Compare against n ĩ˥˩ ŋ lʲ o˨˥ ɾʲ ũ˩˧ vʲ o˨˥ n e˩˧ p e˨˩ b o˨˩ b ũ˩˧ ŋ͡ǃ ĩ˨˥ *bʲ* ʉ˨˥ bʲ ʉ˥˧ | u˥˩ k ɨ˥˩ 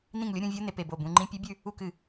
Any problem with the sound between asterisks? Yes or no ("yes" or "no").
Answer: yes